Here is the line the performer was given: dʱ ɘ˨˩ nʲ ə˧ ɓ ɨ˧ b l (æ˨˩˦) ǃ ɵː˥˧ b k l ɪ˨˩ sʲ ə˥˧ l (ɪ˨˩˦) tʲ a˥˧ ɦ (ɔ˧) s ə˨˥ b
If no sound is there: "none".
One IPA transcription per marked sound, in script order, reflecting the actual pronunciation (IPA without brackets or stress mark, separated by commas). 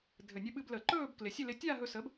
ə˨˩˦, ɪ˧, ɵ˧